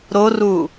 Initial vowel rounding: rounded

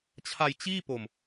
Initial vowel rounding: unrounded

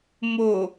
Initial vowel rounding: rounded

